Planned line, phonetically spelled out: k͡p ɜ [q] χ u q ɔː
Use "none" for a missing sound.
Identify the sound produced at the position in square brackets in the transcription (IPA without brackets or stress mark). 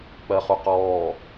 none